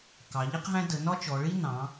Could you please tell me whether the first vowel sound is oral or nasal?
oral